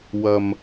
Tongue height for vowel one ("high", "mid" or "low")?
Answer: low